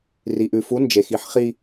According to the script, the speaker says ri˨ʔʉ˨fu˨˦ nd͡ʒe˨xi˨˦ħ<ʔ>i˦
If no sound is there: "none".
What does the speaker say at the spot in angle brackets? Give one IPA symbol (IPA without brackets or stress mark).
χ